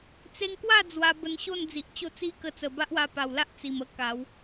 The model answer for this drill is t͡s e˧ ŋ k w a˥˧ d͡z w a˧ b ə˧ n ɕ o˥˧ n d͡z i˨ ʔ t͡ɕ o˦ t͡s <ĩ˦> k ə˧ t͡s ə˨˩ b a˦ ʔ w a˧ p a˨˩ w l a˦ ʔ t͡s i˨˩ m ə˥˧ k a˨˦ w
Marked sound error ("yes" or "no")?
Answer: yes